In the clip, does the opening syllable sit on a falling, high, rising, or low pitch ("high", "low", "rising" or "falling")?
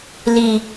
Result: low